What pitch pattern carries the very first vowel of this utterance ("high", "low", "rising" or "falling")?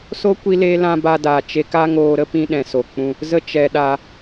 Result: high